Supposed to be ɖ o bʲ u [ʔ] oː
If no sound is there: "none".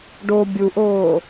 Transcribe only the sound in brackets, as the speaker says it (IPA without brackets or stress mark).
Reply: ʔ